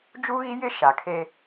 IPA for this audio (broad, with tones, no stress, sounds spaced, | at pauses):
d͡ʒ u˦ ɣ i˦ j ɪ˦ ʃ a˨ kʰ e˦